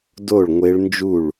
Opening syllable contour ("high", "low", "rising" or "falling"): falling